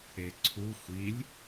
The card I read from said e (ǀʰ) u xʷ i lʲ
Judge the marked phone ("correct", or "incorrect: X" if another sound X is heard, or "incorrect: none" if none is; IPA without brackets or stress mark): correct